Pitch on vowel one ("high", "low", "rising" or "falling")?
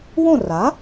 falling